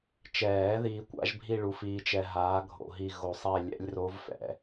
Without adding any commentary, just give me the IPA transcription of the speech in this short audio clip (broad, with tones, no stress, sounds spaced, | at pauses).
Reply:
t͡ʃ ɛː˨˩˦ ð iː˧ kʷ a̰˦˥ ʒ bʱ i˥˧ ɭ u˨˥ f iː˧ t͡ʃ ɛ˧ ɦ aː˨˥ ɡʱ o̰˧ ɦ i˥˧ ɣ o˧ sˤ ɛ˥˧ lʲ ɛ̰˦˥ lʲ r o˦˥ v f ɛ̰˨˥